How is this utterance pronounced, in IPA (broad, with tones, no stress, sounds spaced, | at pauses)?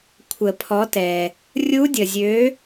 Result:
kʷʰ ə˨˩˦ pʰ ɔ˨˥ t ɛ˩ | rʲ u˦˥ dʲ ə˩ zʲ ø˨˥